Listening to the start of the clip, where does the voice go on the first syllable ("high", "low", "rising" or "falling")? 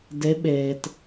rising